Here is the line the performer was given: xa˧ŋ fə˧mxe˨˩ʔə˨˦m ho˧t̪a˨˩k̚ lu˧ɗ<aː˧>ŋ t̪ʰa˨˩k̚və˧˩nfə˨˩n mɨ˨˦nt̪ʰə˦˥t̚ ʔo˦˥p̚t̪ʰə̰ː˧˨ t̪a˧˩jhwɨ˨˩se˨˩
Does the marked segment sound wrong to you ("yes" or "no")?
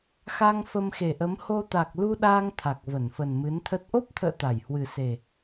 no